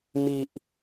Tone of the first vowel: low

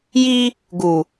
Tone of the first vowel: high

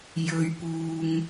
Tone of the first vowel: low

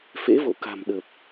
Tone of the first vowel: rising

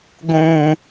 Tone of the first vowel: low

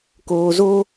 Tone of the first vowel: low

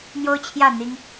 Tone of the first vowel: high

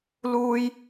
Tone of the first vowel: high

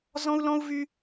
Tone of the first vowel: high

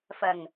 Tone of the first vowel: low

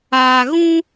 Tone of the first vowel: low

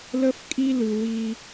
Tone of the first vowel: high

